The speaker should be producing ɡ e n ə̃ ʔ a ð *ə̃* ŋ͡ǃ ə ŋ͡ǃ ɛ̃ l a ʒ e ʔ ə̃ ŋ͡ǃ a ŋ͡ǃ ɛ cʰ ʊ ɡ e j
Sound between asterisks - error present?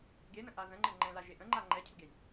no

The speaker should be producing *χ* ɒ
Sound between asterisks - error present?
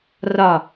yes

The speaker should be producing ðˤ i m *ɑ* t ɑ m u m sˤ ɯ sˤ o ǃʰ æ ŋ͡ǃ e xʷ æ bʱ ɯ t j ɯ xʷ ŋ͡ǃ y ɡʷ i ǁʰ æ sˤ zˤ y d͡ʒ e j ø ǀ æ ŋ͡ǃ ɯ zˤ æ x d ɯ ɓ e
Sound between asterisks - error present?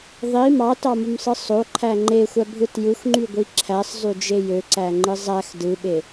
no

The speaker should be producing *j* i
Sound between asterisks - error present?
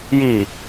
no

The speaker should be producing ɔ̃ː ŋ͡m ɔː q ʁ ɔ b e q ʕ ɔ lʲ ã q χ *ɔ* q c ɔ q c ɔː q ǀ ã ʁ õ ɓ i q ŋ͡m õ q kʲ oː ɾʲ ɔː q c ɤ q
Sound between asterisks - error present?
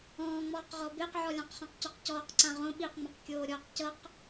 yes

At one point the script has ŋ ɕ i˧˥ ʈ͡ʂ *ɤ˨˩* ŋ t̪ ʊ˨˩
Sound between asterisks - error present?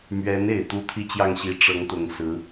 yes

